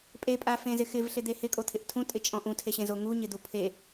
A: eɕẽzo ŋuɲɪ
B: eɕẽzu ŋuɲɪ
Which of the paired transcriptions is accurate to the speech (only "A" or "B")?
A